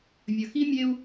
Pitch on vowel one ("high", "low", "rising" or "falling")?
low